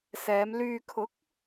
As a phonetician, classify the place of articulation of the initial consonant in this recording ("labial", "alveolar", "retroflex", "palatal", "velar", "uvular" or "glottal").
alveolar